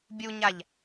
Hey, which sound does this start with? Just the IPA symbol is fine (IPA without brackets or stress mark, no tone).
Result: bʲ